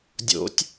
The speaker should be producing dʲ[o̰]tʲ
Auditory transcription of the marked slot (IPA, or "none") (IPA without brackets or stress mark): o̰